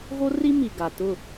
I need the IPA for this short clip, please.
ɣ o˦ r i˦ m i˨ ɡ a˨ t ʊ˦˨

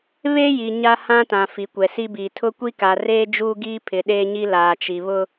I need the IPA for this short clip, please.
β e˦ j i˨ ɲ a˦ h ã˦ t ã˨ f i˨˦ kʷ ɛ˨ s i˦ b iː˨ tʰ ʊ˦ kʷ i˦ k a˨ r eː˦ d͡ʒ uː˦ ɡ iː˦ pʰ ɪ˨ ɗ eː˦ ɲ i˦ l aː˨ t͡ʃ i˨ β ʊ˦

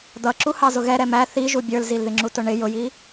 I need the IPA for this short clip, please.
d̪ ʌ ǁ u h ɑ z ʊ ɣ ɛ ɾ ɛ m æ θ i ʒ u bʲ ə˞ l z i l ð ɪ ŋ͡ǁ u t ʊ ɳ ɪ j ʊ j i

